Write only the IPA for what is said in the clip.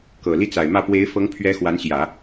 k ɤ˨˩ l i˥ t͡s a˨˩ ɪ̯ m ä˥˩ p w e˧˥ ɪ̯ f ɤ˧˥ ŋ pʰ ɥ ɛ˧˥ x w a˧˥ n ɕ j ä˨˩˦

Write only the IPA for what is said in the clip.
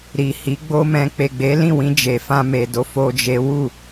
ɾ i˨ h i˨˦ ɡ͡b o˦ m ɛ̃˧ k͡p e˨ ɡ͡b e˨˦ l ĩ˦˨ w ĩ˧ d͡ʒ e˧ f ã˦ m e˧ d o˦ f o˦ d͡ʒ e˦ w u˦˨

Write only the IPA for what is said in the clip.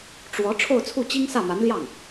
ʈ͡ʂ w ɔ˧˥ ʈ͡ʂʰ o˥˧ ʊ̯ t͡sʰ u˥˩ t͡ɕ i˥ ŋ s ä˥˩ m a˧˥ n l j ɑ˥˩ ŋ

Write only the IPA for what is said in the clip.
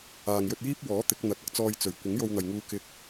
aː˨ ŋ j ɵ˧ t̚ j iː˥ p̚ w ɔː˨˥ t̪ ɪ˨˥ k̚ n̪ ɐ˨˥ t̚ ɐ˧ k̚ t͡s ɔː˧ j t͡s ɵ˨˩ ɥ kʷ ɪ˨˥ ŋ j o˧ w n̪ ɐ˨ j ŋ uː˧ k ɪ˧ k̚

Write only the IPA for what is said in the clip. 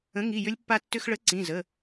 ə̃˨˥ ŋ i˩˧˩ j ʏ˧ lʲ pː a˧ tː ʏ˧ x ɭ ə˨˥ ǀ ĩ˩˧˩ z ə˩˧˩

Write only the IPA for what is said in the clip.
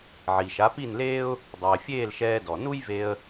ʕ i˩ ʃ a˩˥ p i˥˩ n l eː˥ ʊ̯ | dˤ ɘː˩ fʲ eː˥˩ l ʃ ɛː˧ d ɔ˩ n u˥ j v e˧ ə̯

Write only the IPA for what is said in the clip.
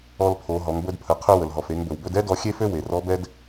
ɔ˧ l pʰ o˩˧ ɦ ɔ˩˧ ŋ b ɵ˧ d pʰ ə˩˧ qʰ ø˧ w ə˩ l ɦ ɔ˩ f e˩˧ ŋ b ɵ˩ w b ɵ˧ d ɛ˥ d ɔ˧ xʲ e˥ f ø˥ w e˩ r ɔ˧˥ b ɛ˥ d

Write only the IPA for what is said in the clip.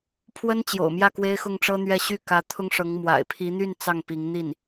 pʰ w ə˥ n t͡ɕ j o̰˨˩ ʊ̯ m j ä˥˩ k w e˥ ɪ̯ x ʊ˥˩ ŋ ʈ͡ʂ ɤ˥ n̪ ɥ ɛ˥˧ ɕ y˥˩ k ä˧˥ t̪ʰ ʊ˥ ŋ ʂ ɤ˧˥ ŋ m w a̰˨˩ ɪ̯ pʰ i˧˥ n̪ y˥˧ n t͡s ɑ˥˩ ŋ p i˧˥ ŋ n̪ i˥˩ n

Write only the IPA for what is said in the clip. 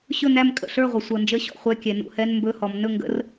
ɕ ɵ˥˨ n̪ æ˥˨ m kʼ ə̰˩˧ ɬ ə˞˥˨ ʁʷ ə˩˧ sʷ ʌ˩˧ n d͡ʒ ə˧˥˧ ɕ ɔ̰˥˨ χʷ ɛ˧˥˧ kʲ ɛ˩˧ n ṵ˩˧ h ɛ˧˥˧ n m b ɵ˧˥˧ h ɔ˩˧ m n ɵ˥˨ ŋ ɡ ə̰˧˥˧ r

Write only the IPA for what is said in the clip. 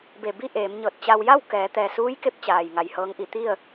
b e˧˩ b i˥˨ ʔ eː˩˧ m ɲ ɤː˧˩ t̚ t͡ɕ a˧ w j a˥˨ w k ɛː˩˧ t̪ ɛː˩ s uː˧˥ j k e˧ p̚ t͡ɕ aː˩ j ŋ a˧˩ j h ɤː˧˥ ŋ ʔ i˩˧ t̪ i˥˨ ə̯

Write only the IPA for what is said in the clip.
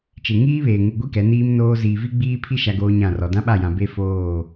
t͡ʃ e˨ ŋ iː˦ β eː˨ ŋ u˨ ɡʷ i˦ k ɛ˨˦ n iː˦ m n oː˦ z iː˨ v i˦ ɡ͡b iː˦ pʰ i˦ ʃ a˦ ɡ oː˦ ɲ ã˦˨ r ɔ˨ d ã˦ ɓ a˦˨ j ã˨ b e˦ f oː˦˨

